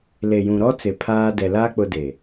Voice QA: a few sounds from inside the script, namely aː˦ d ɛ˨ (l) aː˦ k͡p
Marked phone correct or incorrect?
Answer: correct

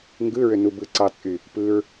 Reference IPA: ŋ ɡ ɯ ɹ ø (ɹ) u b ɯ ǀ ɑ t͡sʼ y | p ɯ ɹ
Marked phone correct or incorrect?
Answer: incorrect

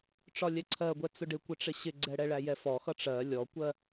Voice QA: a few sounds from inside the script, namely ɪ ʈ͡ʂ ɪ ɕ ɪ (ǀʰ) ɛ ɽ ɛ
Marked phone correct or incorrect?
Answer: incorrect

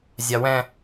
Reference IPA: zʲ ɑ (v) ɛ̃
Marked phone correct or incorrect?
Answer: incorrect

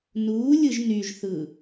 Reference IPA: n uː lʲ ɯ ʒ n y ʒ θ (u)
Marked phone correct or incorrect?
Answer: incorrect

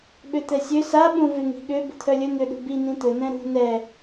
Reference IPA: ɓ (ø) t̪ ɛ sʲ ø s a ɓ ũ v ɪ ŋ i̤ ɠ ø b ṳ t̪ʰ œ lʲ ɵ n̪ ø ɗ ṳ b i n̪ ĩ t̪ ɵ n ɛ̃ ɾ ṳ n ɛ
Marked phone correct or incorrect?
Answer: correct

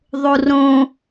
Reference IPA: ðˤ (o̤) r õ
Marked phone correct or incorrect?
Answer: incorrect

